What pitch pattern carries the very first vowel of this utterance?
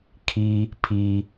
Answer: low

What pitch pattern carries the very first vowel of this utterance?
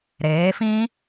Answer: rising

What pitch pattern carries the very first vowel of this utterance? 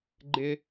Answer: high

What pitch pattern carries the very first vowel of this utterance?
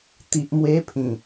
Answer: low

